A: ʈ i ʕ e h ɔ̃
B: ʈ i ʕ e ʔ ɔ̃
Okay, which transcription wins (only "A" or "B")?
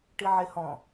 A